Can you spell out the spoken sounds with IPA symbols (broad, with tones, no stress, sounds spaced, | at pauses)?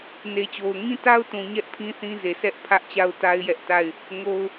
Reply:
n e˨ t͡ɕ o˨ ʊ̯ ŋ ĩ˦ t a˦ ʊ̯ t ũ˨ ɲ ɛ˦ ʔ pʰ ĩ˦ θ ĩ˦ z e˨ sʰ ɛ˦ ʔ pʰ ä˦ ʔ t͡ɕ a˦ ʊ̯ t a˦ ɪ̯ j ɛ˦ ʔ t a˦˨ ɪ̯ | ŋ o˦ ʊ̯